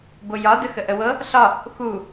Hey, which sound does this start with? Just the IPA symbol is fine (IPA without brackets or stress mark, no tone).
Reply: b